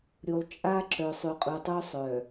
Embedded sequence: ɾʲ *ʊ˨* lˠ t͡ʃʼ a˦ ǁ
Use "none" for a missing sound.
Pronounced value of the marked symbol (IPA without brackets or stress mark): u˨